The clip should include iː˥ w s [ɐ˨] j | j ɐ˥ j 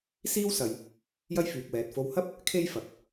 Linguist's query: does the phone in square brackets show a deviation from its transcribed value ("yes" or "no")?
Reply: no